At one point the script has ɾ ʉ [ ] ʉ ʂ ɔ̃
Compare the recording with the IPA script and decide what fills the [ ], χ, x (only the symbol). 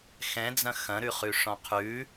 χ